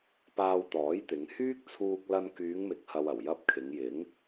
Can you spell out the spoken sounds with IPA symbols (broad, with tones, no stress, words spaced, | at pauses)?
paː˧wt̪ɔː˨˥jt̪ɪ˨˧ŋ hyː˥k̚t͡sʰuː˧k̚lɐ˧n kyː˨˧ŋmɪ˨˥k̚hɐ˨w ɐ˨˩w jɐ˧p̚kʰɪ˨˧ŋ jɪ˨˥ŋ